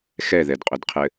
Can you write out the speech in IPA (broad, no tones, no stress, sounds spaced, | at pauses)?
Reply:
x ɛ ð ɛ d qʼ ʊ d qʰ ɘ